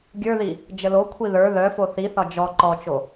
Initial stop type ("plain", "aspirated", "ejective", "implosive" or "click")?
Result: plain